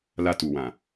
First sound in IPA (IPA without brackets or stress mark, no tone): l